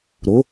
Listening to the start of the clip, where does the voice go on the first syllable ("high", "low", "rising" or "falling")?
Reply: rising